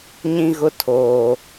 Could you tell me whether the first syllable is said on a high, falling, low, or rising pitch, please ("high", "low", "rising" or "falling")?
high